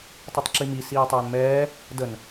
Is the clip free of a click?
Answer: no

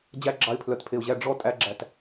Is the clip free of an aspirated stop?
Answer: no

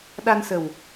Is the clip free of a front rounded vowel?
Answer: yes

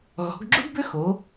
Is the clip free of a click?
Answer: no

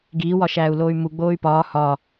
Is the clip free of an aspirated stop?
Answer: yes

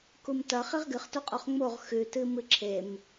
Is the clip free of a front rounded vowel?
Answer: yes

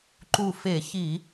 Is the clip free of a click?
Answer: no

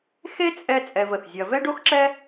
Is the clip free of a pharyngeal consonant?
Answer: yes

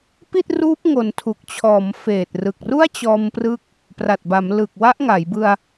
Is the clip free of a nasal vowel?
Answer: yes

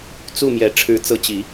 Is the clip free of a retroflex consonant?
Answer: no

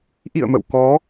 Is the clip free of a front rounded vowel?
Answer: yes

